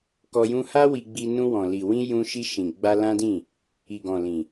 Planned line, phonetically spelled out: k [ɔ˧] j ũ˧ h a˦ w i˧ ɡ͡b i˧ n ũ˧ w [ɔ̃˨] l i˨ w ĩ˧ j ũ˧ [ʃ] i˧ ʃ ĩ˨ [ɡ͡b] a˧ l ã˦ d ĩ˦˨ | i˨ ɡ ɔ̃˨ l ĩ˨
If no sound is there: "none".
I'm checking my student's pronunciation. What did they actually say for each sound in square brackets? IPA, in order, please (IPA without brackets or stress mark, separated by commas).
ɔ˧, ɔ̃˨, ʃ, ɡ͡b